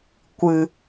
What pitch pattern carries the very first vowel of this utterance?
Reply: low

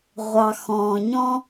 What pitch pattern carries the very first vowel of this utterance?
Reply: low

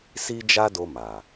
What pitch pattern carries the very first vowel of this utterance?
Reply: high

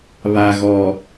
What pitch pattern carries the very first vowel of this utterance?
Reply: low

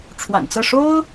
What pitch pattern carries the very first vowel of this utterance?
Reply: low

